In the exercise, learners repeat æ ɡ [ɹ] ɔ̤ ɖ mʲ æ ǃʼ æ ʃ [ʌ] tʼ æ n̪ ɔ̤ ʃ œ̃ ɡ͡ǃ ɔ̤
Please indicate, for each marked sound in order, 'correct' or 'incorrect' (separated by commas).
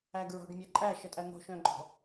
correct, correct